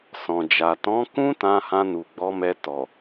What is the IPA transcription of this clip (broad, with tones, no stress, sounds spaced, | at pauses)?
s ɔ̃˨ d͡ʒ a˨ t ɔ̃˨˦ k ũ˦ t ã˧ h ã˧ n u˨ ɡ͡b ɔ˨˦ m ɛ˧ t ɔ˨